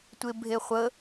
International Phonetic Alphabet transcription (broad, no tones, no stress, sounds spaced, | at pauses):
tʷ e bʱ e χʷ ə